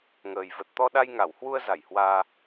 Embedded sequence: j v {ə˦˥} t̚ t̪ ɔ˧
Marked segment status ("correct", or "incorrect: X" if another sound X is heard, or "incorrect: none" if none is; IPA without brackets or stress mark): incorrect: ə˨˩